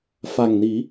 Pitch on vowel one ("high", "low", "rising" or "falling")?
low